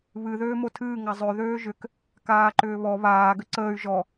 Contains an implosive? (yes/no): no